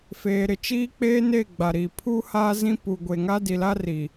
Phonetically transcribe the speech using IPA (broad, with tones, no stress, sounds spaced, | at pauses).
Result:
f eː˨ ɾ ɪ˨ t͡ʃ iː˦ k͡p eː˦ n e˦˨ ɡ͡b a˨ ɾ i˨ pʰ uː˦ h aː˦ z ĩ˦ p u˨ ɡʷ e˨ ŋ a˦ d i˨ l a˦ r i˨